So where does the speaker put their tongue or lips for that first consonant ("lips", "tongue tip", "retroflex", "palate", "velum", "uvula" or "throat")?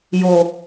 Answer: palate